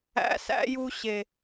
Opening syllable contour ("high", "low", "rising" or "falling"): rising